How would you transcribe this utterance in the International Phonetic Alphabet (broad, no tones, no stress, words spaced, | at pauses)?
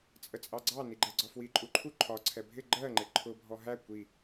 t͡sʼət͡sʼɑɡ͡ǀɑ niɡ͡ǃɛɡ͡ǀɒfwi ǃʼuǃʰu ǃʰɒ ǀʰɛbʱɪ ɡ͡ǃɜŋ͡ǃɪ ǃʰʊ bʱɔɦæ kʷi